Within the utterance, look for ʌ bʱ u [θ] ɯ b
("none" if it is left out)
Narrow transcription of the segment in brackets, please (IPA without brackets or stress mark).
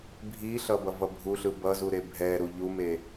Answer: ɬ